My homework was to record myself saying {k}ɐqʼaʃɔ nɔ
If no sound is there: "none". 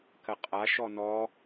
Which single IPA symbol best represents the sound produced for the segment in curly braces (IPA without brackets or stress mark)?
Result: k